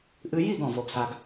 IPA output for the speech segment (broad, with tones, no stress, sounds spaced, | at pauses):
ʔ ɨ˧ j i˦˨ ɡ ɔ̃˨ v o˨ ɡ s a˨ ɡ